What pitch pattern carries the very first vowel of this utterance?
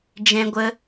high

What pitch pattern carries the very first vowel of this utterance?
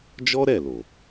high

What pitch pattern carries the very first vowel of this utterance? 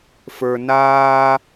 low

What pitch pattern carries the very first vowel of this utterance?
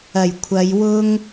low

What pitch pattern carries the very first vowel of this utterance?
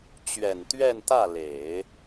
low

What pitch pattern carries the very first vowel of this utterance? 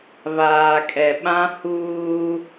low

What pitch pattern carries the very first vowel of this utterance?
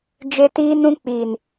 high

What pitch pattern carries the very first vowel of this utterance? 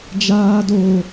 high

